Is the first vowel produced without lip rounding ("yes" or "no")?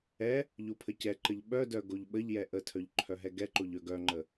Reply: yes